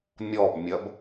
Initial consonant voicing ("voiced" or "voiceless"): voiced